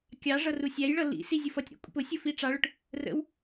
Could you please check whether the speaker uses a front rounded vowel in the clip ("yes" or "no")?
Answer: no